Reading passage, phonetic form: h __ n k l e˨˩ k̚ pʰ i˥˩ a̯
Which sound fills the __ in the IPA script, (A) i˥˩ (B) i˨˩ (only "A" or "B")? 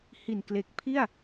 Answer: B